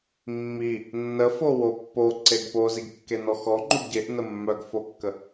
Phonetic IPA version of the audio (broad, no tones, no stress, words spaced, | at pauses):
mːi | nːəfo wopːo ǀeɡpoziɡ kːenɔxɔŋ͡ǃuɡ ɟeʔnə mːœɡfokːə